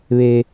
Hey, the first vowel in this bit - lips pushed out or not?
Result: no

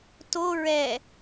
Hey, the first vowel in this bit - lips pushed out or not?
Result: yes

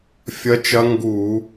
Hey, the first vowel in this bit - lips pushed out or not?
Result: no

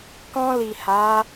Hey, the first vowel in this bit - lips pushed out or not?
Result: yes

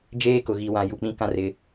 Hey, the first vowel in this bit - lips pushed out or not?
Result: no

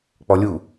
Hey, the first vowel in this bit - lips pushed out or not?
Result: yes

